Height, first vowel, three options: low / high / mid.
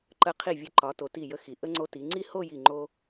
mid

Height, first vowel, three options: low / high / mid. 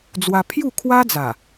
low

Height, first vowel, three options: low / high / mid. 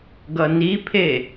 mid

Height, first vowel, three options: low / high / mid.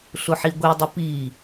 high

